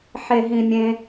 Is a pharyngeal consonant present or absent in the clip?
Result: present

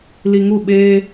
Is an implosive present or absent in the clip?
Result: present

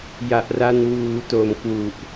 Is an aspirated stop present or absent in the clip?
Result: absent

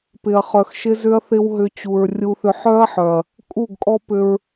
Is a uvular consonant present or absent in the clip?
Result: present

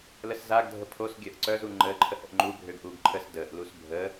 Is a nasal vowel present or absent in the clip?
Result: absent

